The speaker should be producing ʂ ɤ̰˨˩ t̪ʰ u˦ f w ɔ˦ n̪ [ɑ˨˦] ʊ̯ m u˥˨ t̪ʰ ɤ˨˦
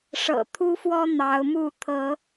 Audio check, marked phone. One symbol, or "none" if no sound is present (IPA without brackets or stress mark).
ɑ˨˦